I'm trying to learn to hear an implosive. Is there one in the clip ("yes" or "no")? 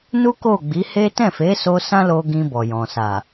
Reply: no